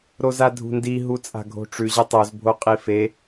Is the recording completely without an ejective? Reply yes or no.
no